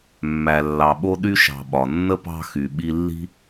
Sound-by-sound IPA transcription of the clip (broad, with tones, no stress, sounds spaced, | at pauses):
mː æ˨ lː ɑ˨ ɓ o˦ ɗ y˥ ʃ ɑ̤˨ ɓ ɒ˩ nː ə˥ p ɑ̤˦ x y˩ ɓ i˦ lː i̤˥